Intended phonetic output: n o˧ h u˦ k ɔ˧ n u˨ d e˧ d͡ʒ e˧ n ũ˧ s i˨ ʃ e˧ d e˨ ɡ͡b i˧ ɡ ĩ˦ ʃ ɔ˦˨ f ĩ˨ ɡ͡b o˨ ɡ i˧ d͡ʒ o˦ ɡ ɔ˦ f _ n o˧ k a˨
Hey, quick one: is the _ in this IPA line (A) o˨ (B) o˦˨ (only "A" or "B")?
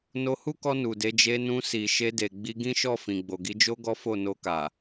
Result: B